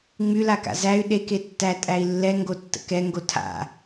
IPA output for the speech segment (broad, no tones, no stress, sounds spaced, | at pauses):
ŋ͡m y l a k a̰ z æ y̯ ɗ e k e tː æ tʼ æ i̯ lː ɛ ŋ ɡ o tː ə̰ k ɛ ŋ ɡ o tʰ a̰